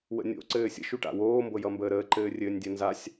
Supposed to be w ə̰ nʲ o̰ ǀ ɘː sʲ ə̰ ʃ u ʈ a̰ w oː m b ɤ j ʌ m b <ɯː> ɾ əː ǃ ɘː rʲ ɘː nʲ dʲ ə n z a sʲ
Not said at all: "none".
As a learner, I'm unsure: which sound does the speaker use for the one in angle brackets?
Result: əː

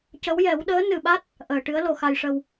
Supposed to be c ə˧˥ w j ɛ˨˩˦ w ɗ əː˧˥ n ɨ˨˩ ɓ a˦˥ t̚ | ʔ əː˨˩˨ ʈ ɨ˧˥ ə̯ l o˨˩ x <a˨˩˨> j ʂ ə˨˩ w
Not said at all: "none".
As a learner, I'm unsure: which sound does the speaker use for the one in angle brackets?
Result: a˨˩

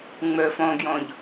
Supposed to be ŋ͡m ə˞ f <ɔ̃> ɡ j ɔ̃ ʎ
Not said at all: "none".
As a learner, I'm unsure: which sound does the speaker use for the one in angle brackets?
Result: ɔ̃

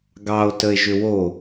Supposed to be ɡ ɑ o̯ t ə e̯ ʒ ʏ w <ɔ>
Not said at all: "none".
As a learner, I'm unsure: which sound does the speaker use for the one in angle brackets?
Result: o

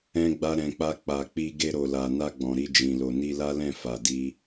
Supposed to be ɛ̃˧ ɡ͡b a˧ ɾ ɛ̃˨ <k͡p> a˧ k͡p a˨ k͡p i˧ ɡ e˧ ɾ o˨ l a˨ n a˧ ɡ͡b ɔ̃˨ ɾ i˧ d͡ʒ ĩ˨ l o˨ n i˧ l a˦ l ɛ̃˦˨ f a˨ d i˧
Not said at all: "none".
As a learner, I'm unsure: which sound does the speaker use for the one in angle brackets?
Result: k͡p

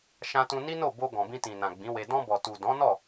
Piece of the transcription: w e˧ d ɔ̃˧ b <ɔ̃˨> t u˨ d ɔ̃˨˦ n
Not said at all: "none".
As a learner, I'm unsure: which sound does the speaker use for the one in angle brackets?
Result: ɔ˨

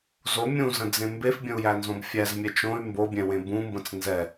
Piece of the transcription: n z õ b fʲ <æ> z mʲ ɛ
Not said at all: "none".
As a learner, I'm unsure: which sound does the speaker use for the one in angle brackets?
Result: æ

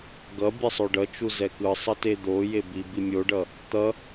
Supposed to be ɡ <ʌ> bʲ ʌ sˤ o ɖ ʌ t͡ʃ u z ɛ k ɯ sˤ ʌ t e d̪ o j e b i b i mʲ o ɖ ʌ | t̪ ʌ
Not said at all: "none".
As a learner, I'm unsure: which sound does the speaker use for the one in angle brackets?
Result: ʌ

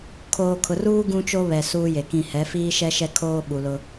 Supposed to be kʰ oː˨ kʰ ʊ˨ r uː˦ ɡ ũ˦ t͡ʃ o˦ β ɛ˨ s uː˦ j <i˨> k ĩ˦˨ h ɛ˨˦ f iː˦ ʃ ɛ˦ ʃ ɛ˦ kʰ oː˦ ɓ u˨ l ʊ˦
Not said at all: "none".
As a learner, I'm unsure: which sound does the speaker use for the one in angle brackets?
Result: e˨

